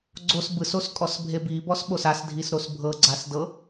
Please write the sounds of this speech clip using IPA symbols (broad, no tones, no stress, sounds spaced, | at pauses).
ɡ͡ǀ o s b ɯ s o s kʼ ɔ s bʱ e b i b ɔ s ɓ o s a s dʱ i s ɾ o s bʱ ɤ ɡ͡ǀ a s d ɤ